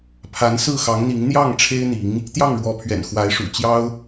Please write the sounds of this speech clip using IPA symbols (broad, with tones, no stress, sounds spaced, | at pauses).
pʰ a˧˥ n s ɹ̩˥˩ x ɑ˧˥ ŋ n̪ i˧˥ ŋ n̪ j ɑ˥˩ ŋ ʈ͡ʂʰ e˥ ɪ̯ n̪ i˧˥ ŋ | t̪ j ɑ˥˩ ŋ ɻ w ɔ˧˥ pʰ ɥ ɛ̰˨˩ n x w a˧˥ ɪ̯ ʂ ṵ˨˩ t͡ɕ j ɑ˥ ʊ̯